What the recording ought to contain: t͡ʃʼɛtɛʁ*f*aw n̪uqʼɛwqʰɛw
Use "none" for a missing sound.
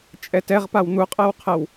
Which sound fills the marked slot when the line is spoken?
p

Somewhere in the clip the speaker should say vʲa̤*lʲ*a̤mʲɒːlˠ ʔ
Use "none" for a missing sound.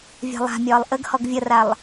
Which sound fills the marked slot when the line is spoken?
lˠ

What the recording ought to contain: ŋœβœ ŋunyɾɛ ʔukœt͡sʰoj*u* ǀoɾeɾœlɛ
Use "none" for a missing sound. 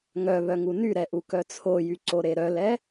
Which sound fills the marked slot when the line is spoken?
y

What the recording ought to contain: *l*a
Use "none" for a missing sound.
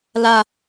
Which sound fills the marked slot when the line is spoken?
l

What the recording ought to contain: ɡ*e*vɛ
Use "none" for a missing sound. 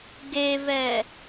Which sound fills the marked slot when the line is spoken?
e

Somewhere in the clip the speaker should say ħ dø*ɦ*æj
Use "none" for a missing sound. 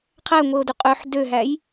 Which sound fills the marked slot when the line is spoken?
ɦ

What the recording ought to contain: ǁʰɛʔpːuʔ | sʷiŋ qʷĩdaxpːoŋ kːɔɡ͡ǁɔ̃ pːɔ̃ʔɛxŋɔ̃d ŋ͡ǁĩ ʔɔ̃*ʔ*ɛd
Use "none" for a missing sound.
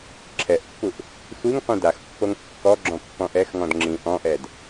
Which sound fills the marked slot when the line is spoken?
ʔ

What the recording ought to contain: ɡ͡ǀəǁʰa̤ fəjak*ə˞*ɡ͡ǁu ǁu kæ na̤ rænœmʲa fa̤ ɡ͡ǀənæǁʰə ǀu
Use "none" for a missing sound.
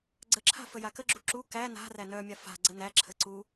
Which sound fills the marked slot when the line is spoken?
ə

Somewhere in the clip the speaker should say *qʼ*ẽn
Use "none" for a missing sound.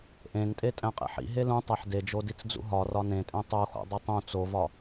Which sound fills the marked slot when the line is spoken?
ʔ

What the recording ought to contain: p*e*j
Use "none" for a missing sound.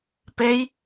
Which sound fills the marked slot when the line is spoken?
e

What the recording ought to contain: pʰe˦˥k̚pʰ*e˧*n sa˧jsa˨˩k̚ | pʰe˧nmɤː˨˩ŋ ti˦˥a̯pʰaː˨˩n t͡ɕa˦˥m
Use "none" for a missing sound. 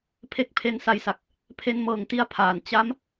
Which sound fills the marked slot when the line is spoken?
e˧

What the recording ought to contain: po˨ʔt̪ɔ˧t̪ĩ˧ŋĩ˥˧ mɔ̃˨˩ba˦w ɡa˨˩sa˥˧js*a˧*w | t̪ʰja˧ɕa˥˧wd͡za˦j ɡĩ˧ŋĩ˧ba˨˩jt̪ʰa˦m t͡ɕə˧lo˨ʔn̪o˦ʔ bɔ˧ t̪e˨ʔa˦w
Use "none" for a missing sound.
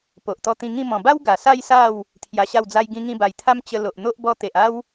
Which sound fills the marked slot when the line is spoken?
a˥˧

